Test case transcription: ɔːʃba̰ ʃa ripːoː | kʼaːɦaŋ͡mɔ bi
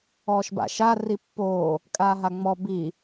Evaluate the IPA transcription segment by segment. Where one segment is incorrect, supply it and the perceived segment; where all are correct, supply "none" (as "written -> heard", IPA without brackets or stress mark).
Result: none